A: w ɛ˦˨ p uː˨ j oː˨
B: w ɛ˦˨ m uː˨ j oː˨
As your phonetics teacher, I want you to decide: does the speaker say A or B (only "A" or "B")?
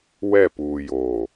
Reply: A